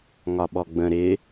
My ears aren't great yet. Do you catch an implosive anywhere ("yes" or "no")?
yes